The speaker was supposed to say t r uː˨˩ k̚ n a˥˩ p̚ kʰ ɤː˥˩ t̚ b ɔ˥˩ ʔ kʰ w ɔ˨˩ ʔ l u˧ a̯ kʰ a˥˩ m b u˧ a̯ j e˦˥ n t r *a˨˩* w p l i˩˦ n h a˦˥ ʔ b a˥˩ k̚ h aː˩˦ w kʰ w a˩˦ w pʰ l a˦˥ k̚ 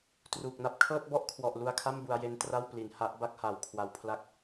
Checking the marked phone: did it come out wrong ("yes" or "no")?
yes